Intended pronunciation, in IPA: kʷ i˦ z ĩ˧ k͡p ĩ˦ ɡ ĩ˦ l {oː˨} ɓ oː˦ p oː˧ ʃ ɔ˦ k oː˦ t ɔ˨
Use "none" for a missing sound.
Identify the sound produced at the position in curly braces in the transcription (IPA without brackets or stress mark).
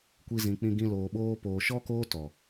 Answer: oː˧